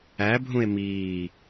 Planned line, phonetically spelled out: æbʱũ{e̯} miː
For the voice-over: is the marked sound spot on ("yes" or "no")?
yes